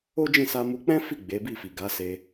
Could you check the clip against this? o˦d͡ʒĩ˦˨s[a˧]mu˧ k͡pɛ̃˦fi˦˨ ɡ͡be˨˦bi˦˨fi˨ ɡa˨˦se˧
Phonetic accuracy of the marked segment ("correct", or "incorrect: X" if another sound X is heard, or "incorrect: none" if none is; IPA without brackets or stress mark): correct